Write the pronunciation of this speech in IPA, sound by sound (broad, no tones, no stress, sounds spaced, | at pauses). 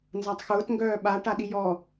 n z a tˤ x ʊː t ŋ ɡ œː ɓ a ʈ a ɗ i j ɔ